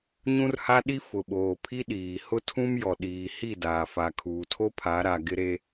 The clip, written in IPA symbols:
ɲ ũ˦ r h a˦ ɗ i˦ f ʊ˨ ɓ oː˨ pʰ i˦ ɗ iː˨ h ʊ˦ tʰ ũ˦ m j ɔ˨ ɗ iː˨ h i˦˨ d aː˨ f a˨ kʰ uː˨ tʰ o˦ pʰ a˨˦ ɾ a˨ ɡ ɪ˦ ɾ e˦

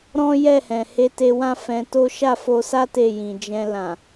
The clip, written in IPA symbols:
ɾ ɔ̃˦ j ɛ˦˨ h ɛ̃˨ h e˧ t e˧ w ã˦ f ɛ̃˧ t o˦ ʃ a˦˨ f o˧ s a˦ t e˦˨ j ĩ˨ d͡ʒ ɛ̃˧ l ã˨

